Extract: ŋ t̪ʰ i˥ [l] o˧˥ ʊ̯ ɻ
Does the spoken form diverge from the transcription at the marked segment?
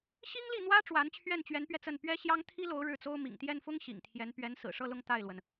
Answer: no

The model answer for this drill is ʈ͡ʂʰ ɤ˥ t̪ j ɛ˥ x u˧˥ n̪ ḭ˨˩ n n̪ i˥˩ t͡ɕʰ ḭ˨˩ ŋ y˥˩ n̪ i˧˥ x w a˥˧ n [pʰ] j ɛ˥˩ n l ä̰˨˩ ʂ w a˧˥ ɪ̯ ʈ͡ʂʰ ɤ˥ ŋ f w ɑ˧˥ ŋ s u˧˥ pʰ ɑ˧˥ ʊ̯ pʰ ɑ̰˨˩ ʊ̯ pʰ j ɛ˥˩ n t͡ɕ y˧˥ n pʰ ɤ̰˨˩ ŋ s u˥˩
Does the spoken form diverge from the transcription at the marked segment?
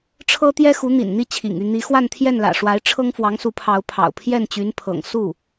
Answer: yes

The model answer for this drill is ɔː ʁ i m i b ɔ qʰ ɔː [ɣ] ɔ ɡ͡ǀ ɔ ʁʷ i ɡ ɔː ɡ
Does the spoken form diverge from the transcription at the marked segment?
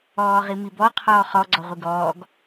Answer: yes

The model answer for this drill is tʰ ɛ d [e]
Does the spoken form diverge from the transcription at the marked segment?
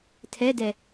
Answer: yes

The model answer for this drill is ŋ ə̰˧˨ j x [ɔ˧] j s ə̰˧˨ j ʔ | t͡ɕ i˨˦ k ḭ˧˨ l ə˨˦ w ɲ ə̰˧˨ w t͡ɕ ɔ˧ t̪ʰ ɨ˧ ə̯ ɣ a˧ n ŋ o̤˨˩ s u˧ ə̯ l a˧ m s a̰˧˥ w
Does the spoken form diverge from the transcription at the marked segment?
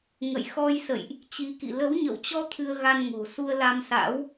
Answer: no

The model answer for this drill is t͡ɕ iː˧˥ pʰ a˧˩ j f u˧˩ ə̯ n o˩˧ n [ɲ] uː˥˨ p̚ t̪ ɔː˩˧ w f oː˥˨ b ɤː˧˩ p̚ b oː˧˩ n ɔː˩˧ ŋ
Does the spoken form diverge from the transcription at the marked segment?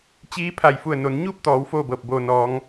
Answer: no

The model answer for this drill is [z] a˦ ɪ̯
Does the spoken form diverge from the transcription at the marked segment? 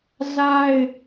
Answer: no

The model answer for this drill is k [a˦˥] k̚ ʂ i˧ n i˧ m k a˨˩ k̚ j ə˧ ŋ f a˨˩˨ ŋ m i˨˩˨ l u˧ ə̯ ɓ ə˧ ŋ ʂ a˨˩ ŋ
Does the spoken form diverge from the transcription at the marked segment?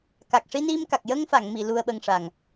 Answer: yes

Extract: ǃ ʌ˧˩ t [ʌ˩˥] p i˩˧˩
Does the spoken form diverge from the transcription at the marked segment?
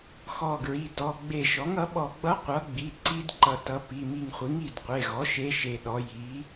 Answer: no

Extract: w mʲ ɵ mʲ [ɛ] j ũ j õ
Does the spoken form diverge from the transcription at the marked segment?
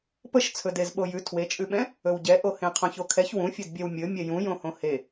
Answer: no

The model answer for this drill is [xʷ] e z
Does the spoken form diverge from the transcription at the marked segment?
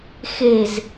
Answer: yes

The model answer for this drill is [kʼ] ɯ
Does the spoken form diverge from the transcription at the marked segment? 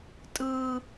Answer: yes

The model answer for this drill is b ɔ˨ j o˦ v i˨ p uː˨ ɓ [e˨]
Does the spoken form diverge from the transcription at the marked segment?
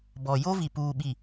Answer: yes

